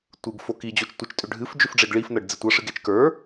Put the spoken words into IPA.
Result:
tʷɨɡ foki d͡ʑot͡ʃtʷɨt͡ʃ tʼʏɖʱɨf d͡ʒʏfɖ͡ʐeɡɭif nɤɖd͡zitʷɤ ʂɨɡet͡ʃkə˞

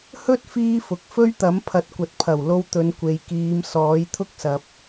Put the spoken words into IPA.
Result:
hɵ˥t̚ fiː˥fʊ˨k̚ fɵ˥ɥt̪ɐ˨˥m pʰɐ˨˥t̚kʷɐ˨t̚pʰɐ˨˩wlo˧w t̪ɵ˨˧nkʷe˨jkiː˨˧m sɔː˨˥jt̪ʰʊ˥k̚sɐ˨p̚

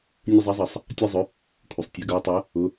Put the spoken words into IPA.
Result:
nʲɵ˧zˤa˩˥zˤʌ˩sˤ | tʲa˧ zˤɵ˩˥ | kʷʰɪ˩sˤtʲɛ˩˥ɡa˩˥tˤɛ˩˥ | ʊ˩˥

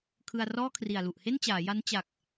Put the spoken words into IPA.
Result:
kʰɯ˧a̯rɔː˥˩kʰri˨˩a̯ lu˨˩ʔhe˥˩nt͡ɕaː˩˦ja˦˥n t͡ɕa˨˩k̚

